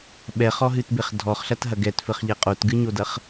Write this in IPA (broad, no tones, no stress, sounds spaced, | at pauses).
ɓ ɛ χ ɔ ɦ ɨ t b e χ dʱ ɔ χ ɬ ɐ t ɦ ɐ ɡ ɛ t f ɘ χ ʎ ɛ qʼ o t ɡ ɨ ɲ o d ɐ χ